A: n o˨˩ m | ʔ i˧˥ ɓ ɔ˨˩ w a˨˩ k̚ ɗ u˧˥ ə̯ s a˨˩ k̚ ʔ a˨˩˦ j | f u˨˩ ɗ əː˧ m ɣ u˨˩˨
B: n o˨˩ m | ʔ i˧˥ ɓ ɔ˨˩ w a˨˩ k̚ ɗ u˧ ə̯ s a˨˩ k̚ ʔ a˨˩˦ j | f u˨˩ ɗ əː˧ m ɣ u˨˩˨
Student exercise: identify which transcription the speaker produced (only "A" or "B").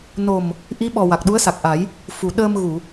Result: A